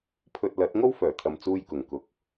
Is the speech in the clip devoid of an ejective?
yes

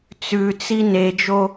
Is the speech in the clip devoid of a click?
yes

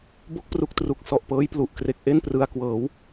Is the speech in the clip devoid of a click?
yes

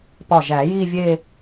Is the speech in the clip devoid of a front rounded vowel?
yes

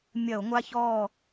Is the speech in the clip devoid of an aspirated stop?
yes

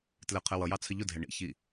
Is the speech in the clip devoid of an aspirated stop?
no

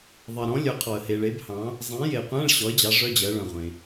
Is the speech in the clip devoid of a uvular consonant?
no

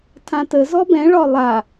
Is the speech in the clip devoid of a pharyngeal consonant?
yes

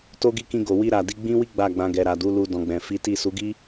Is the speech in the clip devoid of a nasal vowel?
no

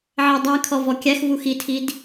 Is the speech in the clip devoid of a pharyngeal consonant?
no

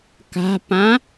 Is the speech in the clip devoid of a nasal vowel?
no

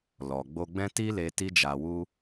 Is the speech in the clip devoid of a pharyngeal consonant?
yes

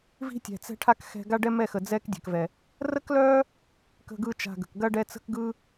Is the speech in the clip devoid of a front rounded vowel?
no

